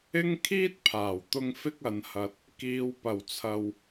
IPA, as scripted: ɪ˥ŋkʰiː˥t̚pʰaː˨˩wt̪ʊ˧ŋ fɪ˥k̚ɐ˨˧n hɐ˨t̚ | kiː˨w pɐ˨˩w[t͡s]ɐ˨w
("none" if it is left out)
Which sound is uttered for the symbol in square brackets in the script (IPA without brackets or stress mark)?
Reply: t͡sʰ